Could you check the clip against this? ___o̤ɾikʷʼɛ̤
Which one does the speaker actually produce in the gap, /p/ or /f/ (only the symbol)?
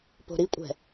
p